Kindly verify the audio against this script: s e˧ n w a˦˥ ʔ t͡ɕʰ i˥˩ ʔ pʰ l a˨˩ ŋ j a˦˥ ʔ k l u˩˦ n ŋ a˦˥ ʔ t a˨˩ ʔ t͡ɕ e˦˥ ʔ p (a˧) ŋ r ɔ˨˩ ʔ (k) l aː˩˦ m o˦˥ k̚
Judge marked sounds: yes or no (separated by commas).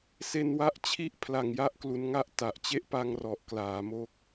yes, yes